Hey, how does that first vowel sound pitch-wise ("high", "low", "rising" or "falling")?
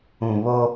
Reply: low